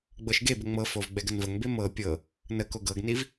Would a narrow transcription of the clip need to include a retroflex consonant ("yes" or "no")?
no